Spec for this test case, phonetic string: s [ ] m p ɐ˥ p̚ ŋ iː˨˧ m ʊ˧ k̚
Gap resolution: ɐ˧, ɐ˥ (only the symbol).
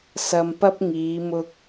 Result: ɐ˧